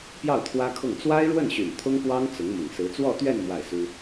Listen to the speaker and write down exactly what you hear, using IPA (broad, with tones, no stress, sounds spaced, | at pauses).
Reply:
p j ɑ˥˩ ʊ̯ t̪ʰ w ä˥ kʰ ʊ˥˩ ŋ t͡s w a˥ ɪ̯ ɻ w ə˥˩ n ɕ y˨˩ n t̪ʰ ʊ˥ ŋ p w ɑ˥ ŋ t͡s ʊ˧˥ ŋ m ʊ˨˩ ŋ s ɹ̩˧˥ t͡s w ɔ˥˧ t̪ ɥ ɛ˥˧ n m w a˥˩ ɪ̯ s u˥